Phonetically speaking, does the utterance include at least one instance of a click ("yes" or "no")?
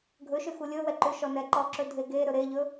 yes